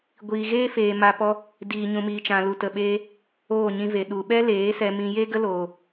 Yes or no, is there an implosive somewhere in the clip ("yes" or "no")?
yes